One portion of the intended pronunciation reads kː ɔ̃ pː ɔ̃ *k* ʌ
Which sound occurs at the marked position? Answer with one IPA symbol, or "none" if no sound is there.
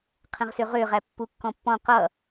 q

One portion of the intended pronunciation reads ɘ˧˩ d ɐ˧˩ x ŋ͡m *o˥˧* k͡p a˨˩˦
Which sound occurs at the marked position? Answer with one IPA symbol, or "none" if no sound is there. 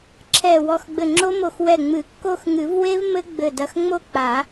o˥˧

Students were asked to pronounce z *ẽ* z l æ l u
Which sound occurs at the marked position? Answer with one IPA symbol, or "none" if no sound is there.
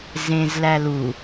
ẽ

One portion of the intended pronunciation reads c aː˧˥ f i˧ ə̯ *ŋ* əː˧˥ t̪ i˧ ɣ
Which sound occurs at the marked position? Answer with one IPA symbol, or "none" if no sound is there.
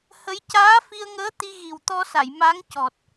ŋ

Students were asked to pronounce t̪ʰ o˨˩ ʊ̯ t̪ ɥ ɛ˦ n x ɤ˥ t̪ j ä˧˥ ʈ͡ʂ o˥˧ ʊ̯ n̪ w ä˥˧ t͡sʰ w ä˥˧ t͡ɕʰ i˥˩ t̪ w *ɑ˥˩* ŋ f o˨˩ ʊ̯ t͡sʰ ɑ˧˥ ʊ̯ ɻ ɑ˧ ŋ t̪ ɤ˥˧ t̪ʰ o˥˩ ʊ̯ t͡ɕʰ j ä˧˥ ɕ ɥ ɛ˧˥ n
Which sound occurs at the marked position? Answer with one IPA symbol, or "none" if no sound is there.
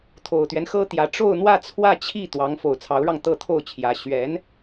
ɑ˧˥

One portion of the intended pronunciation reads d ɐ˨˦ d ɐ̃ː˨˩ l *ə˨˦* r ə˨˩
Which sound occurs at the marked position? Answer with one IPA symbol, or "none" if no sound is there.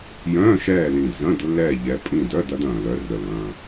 œ˨˦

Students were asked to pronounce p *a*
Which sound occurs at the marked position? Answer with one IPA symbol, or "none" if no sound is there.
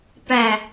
æ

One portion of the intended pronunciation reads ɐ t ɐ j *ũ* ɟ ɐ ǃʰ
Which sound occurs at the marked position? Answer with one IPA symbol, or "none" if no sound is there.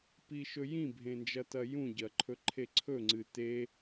ũ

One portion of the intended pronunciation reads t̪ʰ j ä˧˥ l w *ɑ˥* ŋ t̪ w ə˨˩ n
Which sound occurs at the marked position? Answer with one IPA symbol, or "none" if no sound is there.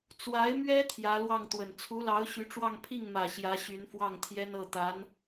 ɑ˥˩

